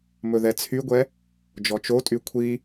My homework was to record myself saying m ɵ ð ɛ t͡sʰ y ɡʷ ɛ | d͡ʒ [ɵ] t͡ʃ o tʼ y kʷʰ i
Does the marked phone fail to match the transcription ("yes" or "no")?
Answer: yes